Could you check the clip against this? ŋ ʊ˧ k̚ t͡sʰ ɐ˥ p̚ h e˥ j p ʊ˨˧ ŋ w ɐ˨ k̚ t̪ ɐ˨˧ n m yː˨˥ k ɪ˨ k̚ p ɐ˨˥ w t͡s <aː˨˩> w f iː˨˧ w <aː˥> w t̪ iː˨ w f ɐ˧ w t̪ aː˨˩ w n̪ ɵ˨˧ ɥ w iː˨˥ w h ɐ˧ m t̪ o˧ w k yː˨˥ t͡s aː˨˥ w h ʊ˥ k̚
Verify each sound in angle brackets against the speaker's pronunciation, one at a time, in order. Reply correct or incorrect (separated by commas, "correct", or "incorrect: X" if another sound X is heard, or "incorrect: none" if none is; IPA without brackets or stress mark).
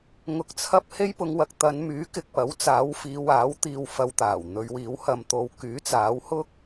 incorrect: aː˨˥, incorrect: aː˨˥